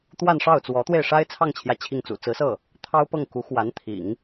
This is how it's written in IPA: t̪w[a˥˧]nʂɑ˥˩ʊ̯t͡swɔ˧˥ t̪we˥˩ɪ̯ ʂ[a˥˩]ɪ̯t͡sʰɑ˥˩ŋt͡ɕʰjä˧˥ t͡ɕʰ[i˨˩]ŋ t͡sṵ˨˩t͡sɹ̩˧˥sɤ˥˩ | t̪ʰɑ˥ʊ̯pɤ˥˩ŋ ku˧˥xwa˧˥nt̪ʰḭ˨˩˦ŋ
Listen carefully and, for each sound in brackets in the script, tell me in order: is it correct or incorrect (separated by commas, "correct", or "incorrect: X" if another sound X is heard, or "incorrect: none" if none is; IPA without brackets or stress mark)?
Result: correct, incorrect: a˥, incorrect: i˥˩